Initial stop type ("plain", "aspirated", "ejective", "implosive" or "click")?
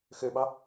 implosive